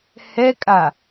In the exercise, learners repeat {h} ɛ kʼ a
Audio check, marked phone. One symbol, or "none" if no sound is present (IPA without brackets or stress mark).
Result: h